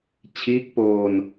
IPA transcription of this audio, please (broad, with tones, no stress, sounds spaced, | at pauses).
t͡ɕʰ iː˦˥ k̚ p oː˧ n